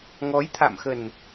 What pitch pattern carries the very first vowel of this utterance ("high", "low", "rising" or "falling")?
rising